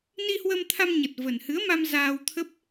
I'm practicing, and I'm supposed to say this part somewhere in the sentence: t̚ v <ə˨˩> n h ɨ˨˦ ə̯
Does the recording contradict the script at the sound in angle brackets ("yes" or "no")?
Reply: no